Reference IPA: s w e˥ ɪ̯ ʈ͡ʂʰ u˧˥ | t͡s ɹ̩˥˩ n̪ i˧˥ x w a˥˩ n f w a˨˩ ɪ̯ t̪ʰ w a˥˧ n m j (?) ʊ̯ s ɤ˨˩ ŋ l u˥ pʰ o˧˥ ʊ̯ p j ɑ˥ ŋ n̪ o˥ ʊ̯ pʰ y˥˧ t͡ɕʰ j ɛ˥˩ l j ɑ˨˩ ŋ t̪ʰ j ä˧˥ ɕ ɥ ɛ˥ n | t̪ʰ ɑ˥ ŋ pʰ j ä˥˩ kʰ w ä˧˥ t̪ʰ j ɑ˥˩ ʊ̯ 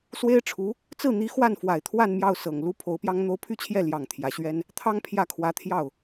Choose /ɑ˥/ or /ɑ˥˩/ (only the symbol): ɑ˥˩